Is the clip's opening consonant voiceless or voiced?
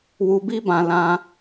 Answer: voiced